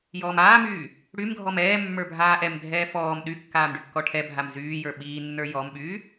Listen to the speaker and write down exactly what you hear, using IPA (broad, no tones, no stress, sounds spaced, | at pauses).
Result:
j ɔː m aː m yː | ɽ y m ɡʱ ɔ m ɛː mː ə˞ bʱ aː ʔ ɛ m dʱ ɛː f ɔː m ɗ y kː aː m ɖ y kː ɔ ʈʰ ɛ bʱ a m z yː j ə˞ ɓ iː nː ə˞ j ɔ m ɓ yː